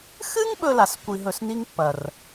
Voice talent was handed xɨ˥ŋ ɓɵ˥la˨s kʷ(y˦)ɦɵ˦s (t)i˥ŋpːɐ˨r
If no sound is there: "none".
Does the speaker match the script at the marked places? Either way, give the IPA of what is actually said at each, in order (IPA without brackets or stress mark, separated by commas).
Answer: i˦, n